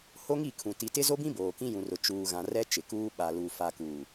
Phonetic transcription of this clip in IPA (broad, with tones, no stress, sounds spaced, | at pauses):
h o˦ ŋ i˦˨ kʰ ũ˨ t i˨ t ɪ˦ z o˦ b ĩ˦ b oː˨ k ĩ˦ j ũ˨ r ʊ˨ t͡ʃ uː˨ ɣ ã˨ r ɛ˦ t͡ʃ ɪ˨ k uː˦ ɓ a˨ l u˨ f a˨ k uː˨